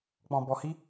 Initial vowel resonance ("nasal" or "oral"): nasal